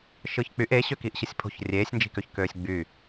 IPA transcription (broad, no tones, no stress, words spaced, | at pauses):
ʃɯçk͡pyʔ eɕø kiːʔɕɯsʲpʰo̤ç rʲeːsʲnd͡ʒi̤køç køːsʲɡ͡by